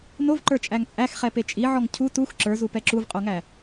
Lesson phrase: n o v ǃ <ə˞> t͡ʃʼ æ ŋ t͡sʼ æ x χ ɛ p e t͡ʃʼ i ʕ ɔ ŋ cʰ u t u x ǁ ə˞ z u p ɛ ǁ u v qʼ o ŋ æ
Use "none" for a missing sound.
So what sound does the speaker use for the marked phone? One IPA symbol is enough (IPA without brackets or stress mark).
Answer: ə˞